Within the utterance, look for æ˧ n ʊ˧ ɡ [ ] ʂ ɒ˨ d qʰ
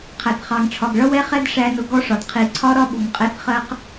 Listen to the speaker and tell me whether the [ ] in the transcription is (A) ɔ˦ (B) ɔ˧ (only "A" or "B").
A